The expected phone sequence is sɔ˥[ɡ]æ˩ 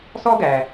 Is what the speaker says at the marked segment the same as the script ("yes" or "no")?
yes